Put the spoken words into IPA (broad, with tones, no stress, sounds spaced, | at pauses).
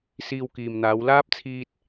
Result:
s iː˧ w k iː˨ m n̪ aː˨˧ w l aː˥ p̚ t͡sʰ iː˧ t̚